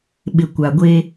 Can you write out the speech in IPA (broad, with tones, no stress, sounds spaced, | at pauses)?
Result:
ɓ ɪ˨ kʷ a˨ ɡʷ eː˦